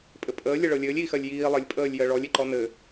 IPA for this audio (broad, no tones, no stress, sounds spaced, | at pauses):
pʼ ɘ pʼ əː lʲ ə ɭ ɤ lʲ ɘː lʲ iː x ɜ lʲ j iː lˠ ɘ lʲ pʼ əː lʲ j ɜ ɭ ɔ lʲ e ǃ ɔ n ɘ